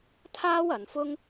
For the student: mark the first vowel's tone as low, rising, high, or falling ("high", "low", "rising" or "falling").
high